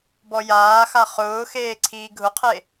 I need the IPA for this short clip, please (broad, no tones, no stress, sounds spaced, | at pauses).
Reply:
b ɔ j aː x a χ ʊː x eː ǀʰ iː ɡʱ ʊ qʰ e